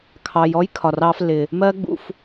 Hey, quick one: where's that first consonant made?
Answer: velum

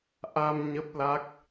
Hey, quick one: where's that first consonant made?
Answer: throat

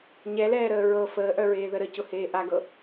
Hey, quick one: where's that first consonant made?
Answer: palate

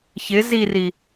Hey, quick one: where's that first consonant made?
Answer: palate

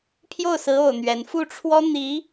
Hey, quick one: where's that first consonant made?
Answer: lips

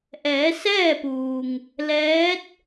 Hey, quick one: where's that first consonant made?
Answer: throat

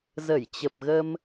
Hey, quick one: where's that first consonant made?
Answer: tongue tip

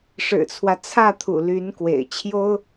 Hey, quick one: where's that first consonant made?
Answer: retroflex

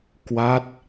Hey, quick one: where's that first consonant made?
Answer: velum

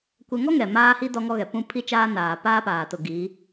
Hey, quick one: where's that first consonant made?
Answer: velum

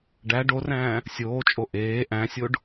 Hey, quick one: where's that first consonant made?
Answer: retroflex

